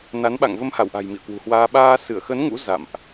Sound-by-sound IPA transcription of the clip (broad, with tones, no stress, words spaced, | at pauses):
na˨˦nɓa̰˧˨ŋ və˧mha˧˩wʔa̤˨˩j mḭ˧˨ə̯kwṳ˨˩hwaː˧ ɓaː˧ sɨ˧˩ə̯xə˨˦n ŋṵ˧˥ za̰˧˨mʔ